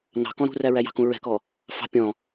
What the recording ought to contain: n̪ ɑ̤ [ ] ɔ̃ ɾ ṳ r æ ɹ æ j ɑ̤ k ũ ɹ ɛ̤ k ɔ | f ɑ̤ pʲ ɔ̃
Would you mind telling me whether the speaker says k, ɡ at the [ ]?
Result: k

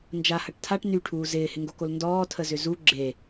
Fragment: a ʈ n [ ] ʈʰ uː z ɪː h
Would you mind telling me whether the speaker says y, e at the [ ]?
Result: y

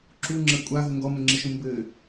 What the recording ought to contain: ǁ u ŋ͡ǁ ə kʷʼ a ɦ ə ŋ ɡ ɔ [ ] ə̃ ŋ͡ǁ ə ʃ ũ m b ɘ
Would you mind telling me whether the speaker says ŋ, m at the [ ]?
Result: m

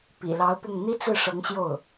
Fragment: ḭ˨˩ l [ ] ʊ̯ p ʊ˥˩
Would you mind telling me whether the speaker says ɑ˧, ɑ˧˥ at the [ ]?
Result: ɑ˧˥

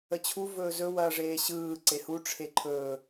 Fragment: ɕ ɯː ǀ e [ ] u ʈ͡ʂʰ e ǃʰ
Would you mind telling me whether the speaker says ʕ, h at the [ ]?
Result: h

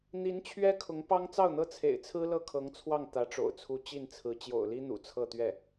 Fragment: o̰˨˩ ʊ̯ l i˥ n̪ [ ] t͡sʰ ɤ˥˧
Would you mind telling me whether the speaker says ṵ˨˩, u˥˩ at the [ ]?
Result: ṵ˨˩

